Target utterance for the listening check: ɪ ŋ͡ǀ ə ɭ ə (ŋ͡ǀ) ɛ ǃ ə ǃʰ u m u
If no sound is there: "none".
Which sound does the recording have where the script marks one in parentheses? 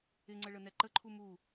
n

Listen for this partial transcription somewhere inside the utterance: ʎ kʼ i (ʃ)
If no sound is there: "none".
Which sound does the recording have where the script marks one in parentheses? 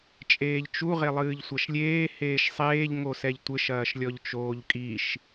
ʃ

